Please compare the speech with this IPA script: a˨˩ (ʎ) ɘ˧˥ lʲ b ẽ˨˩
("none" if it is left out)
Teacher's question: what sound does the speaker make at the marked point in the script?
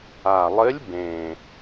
lˠ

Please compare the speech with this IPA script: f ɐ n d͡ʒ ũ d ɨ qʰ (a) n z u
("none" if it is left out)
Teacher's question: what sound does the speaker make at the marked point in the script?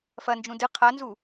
a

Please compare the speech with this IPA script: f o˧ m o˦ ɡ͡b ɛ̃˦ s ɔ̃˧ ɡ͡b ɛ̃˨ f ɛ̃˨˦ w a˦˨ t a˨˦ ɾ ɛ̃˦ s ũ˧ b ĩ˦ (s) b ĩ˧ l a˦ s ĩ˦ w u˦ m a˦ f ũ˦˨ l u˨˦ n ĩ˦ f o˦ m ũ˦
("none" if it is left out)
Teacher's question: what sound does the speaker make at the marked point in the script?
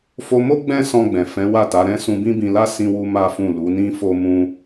none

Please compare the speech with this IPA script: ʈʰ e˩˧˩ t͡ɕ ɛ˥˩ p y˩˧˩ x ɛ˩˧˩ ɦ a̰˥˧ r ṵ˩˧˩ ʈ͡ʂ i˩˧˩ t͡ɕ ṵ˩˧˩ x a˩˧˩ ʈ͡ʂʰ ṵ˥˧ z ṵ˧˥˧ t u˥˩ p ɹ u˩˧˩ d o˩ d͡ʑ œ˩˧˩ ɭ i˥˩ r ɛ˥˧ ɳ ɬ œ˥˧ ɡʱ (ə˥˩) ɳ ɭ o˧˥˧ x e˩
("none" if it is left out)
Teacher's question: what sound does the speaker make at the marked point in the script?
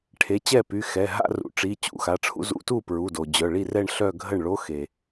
ə˥˩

